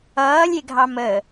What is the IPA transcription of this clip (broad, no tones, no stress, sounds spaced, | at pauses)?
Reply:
ʌː lʲ e ɡʱ ɑ m ə